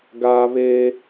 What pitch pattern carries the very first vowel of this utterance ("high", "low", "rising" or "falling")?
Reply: high